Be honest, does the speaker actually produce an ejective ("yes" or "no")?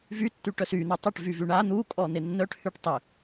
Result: yes